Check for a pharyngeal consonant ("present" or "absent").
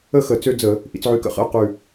present